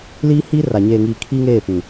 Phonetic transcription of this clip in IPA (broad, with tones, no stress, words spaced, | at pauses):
liː˦hiː˦ ra˨ ɲeː˨ŋiː˨ kʰiː˦ŋeː˦˨ pĩ˨